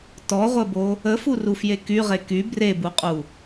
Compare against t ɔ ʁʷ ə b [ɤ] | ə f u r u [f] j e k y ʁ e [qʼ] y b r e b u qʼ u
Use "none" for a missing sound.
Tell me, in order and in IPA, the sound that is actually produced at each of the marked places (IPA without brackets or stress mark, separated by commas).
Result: o, f, k